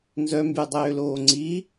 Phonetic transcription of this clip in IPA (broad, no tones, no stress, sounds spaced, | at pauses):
n z œ m b y dˤ øː l oː ŋ͡ǀ i